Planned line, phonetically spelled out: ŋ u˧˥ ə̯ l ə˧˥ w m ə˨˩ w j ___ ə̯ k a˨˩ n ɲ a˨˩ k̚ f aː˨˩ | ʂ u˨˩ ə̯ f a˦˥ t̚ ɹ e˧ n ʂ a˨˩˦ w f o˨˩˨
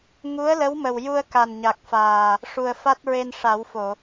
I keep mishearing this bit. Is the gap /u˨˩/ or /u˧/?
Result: u˧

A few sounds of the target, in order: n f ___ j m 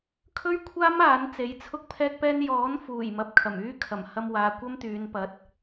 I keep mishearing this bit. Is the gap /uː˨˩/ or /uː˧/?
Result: uː˨˩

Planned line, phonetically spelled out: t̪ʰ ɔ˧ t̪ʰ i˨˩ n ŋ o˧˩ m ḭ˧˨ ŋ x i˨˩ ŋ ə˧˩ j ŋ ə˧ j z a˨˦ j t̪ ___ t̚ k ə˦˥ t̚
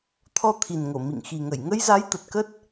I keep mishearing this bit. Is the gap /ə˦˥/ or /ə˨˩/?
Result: ə˨˩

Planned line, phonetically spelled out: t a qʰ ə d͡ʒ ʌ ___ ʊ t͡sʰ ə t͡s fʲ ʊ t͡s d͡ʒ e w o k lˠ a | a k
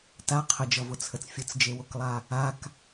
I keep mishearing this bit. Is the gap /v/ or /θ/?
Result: v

